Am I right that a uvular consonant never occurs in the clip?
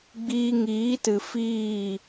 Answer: yes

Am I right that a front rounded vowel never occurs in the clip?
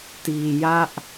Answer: yes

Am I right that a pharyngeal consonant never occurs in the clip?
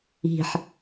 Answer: no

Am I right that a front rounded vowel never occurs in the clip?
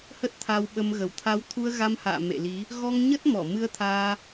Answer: yes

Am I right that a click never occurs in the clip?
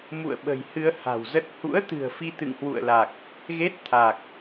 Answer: yes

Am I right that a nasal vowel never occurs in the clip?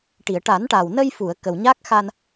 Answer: yes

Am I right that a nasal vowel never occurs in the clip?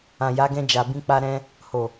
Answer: no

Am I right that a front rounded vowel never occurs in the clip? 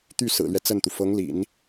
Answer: no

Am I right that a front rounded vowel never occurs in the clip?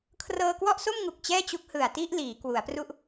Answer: yes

